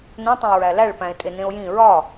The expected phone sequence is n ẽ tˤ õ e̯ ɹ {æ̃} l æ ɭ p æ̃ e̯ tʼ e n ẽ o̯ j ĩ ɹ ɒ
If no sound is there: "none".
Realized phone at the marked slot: æ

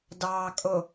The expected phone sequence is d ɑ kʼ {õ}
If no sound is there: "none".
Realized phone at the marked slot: o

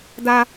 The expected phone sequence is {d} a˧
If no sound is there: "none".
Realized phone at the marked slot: d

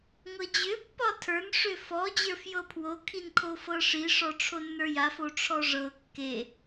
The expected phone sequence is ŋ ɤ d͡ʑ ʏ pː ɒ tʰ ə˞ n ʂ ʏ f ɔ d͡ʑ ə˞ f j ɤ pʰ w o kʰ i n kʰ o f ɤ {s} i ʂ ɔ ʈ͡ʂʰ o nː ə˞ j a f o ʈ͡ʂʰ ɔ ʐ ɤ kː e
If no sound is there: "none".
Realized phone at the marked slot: ʂ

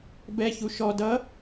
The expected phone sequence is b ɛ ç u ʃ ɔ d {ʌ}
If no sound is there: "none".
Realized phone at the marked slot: ʌ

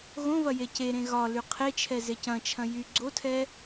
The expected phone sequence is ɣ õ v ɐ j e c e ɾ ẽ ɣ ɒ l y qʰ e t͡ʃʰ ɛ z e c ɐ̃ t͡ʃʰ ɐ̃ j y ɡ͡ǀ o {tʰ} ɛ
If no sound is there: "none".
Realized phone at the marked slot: tʰ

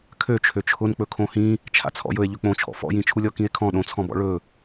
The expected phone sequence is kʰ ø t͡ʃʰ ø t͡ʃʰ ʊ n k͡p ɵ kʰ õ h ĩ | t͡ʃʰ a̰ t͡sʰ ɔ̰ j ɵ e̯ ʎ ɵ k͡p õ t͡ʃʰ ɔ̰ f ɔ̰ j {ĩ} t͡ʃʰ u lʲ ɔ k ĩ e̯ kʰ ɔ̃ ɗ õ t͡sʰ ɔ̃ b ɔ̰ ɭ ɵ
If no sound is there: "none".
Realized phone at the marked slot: ĩ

